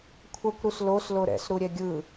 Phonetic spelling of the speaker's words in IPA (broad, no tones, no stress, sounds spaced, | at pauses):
kʷʰ ʌ kʷ ɾ u s l o s l o ɾ ɛ̰ s ɾ u ɾʲ ɛ ɡʲ ɯ